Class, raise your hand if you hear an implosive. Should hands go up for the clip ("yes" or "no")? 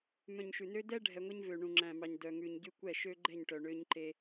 no